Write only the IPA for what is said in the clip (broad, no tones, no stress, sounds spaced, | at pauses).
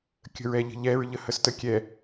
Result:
kʲ ə̤ ɹ ɛ ʎ ə̤ ʎ ɛ ɹ ʎ ə h ə s t ə kʲ ɛ